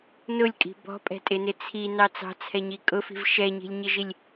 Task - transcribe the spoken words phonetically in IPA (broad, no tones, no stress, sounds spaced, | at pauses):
n ʊ lʲ kʼ i̤ b ɔ̤ pʼ ɛ̤ tʼ ɪ n ɪ t͡sʰ i n ɑ t͡s ɑ̤ t͡sʰ ɛ ɲ i kʼ ʊ f i̤ v ʃ ɛ ɲ i̤ lʲ ɲ ɪ ʒ i lʲ